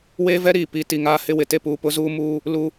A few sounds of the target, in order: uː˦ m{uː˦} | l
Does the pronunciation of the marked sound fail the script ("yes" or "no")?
no